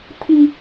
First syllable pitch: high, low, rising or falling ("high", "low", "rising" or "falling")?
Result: high